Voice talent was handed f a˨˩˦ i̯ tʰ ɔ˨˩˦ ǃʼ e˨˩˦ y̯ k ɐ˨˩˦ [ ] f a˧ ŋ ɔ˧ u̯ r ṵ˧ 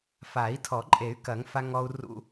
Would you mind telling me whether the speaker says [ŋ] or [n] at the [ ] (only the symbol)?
ŋ